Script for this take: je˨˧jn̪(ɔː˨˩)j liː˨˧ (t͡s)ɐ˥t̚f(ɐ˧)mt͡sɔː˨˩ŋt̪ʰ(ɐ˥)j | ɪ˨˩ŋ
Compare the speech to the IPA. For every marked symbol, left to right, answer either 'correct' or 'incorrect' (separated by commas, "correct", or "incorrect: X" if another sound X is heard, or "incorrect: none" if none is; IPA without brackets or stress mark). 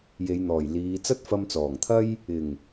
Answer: correct, correct, correct, correct